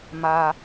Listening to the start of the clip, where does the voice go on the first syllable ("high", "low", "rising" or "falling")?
low